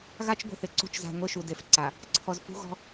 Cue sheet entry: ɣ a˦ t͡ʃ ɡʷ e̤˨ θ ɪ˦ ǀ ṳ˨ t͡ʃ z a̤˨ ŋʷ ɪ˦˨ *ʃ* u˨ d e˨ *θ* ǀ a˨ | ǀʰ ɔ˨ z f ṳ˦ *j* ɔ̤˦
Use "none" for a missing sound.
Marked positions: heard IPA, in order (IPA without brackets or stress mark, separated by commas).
ʃ, f, ɣ